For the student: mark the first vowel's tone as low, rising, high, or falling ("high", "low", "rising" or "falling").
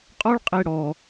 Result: high